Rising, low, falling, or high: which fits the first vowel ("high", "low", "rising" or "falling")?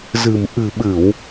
low